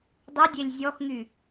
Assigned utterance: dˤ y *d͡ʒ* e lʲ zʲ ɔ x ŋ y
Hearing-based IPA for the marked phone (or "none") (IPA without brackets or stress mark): dʲ